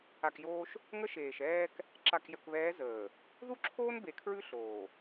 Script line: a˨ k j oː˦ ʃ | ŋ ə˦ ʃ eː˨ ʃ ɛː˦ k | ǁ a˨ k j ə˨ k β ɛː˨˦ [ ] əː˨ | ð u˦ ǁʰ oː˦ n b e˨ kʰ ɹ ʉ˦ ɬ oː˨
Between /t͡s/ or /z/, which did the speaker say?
z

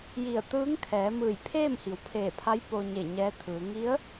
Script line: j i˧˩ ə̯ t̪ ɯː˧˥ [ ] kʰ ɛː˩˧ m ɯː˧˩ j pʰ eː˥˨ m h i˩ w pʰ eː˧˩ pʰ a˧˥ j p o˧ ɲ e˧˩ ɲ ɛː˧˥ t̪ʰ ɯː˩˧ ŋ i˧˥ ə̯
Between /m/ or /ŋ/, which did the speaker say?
ŋ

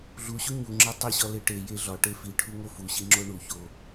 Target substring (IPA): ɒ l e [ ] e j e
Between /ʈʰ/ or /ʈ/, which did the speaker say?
ʈ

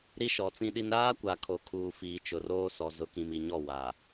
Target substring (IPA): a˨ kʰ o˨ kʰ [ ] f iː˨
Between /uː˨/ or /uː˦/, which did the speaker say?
uː˨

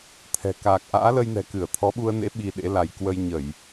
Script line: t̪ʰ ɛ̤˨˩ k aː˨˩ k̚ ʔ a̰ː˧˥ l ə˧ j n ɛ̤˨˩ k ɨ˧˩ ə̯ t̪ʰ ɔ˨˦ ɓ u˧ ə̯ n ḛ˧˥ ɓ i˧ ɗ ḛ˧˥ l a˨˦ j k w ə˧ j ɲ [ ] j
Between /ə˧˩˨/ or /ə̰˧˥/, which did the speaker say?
ə˧˩˨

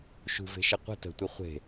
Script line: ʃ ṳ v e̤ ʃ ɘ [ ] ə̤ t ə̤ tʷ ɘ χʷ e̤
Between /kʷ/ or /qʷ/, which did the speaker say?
qʷ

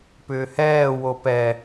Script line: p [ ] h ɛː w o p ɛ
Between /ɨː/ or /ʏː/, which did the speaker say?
ʏː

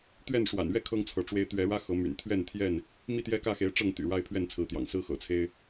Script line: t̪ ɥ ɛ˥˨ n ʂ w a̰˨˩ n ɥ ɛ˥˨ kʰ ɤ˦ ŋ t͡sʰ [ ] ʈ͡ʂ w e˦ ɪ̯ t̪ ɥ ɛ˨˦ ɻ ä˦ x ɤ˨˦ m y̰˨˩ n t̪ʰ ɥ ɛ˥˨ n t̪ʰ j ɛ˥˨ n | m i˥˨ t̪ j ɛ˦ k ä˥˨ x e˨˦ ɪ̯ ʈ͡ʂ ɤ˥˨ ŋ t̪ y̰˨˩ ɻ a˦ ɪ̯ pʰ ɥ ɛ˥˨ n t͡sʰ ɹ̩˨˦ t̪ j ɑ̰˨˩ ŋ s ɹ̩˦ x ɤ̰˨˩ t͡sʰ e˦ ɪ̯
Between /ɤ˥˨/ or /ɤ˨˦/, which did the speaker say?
ɤ˨˦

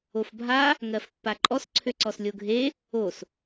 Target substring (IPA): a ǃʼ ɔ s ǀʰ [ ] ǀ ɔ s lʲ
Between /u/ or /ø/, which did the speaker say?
ø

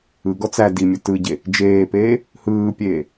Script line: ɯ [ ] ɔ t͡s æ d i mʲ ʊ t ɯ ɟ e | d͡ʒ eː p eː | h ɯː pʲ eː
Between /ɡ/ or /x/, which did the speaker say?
ɡ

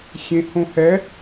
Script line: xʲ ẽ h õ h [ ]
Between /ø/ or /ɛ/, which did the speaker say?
ɛ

